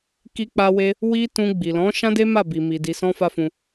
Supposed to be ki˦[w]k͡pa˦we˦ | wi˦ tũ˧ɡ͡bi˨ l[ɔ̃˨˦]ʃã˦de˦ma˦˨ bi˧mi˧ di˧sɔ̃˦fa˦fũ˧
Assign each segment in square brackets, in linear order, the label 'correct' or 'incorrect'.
incorrect: none, correct

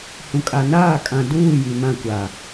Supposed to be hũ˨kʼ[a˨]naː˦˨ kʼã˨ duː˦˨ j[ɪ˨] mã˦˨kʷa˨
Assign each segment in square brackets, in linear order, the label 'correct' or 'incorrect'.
correct, incorrect: i˨

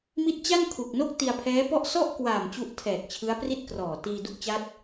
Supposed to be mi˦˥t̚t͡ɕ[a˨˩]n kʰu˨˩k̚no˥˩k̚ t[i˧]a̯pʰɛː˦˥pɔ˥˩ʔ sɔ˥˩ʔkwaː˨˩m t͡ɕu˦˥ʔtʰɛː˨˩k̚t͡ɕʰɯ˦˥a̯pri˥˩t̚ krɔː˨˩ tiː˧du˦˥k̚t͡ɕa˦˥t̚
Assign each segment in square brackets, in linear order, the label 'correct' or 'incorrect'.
incorrect: a˥˩, correct

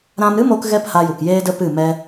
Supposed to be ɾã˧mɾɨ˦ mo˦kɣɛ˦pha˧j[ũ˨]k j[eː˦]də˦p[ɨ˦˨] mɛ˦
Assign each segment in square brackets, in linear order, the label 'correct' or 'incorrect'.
incorrect: u˨, correct, correct

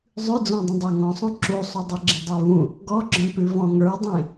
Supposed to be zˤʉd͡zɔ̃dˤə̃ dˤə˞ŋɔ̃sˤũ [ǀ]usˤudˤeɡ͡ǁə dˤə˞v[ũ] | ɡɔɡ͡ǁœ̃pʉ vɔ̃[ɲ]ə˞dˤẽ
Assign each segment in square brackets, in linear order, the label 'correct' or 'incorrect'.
incorrect: ǁ, correct, incorrect: ŋ

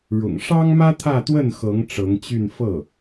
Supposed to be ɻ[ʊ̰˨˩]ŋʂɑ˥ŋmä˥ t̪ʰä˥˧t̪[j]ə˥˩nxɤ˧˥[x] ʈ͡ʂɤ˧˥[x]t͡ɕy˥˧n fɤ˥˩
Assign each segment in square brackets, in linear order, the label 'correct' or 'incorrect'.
correct, incorrect: w, incorrect: ŋ, incorrect: ŋ

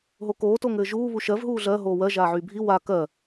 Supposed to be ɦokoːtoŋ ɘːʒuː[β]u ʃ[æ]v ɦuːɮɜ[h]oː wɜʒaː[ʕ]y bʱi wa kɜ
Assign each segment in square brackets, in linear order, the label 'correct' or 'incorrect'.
correct, incorrect: ɜ, incorrect: ɦ, correct

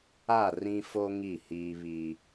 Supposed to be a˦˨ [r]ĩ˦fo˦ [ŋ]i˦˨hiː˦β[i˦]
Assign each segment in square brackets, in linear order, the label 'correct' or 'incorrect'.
correct, correct, correct

